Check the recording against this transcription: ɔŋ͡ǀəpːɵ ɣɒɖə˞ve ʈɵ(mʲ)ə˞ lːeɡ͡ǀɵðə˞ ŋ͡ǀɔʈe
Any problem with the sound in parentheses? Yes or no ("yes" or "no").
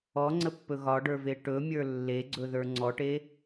no